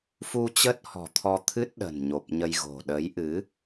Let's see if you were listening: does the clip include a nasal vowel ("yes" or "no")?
no